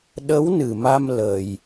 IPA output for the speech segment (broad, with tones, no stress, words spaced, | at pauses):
ɗə˧˥w nɨ˨˩ma˧m lə˨˩j